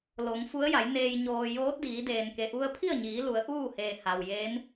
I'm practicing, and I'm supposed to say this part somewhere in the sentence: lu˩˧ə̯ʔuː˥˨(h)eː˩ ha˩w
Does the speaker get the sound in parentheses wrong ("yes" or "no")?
no